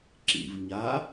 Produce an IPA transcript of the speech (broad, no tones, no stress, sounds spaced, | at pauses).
ǁ ḭ v ɲ a